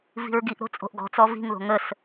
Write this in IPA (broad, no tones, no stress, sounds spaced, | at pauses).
v i̤ ɹ ɡ i ʔ ɾ o̤ t͡sʼ o̤ ʔ ɡ ɔ̤ t͡s ɔ v i̤ ŋ ð o̤ ŋ ə s